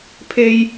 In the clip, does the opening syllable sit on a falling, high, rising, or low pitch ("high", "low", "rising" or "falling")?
high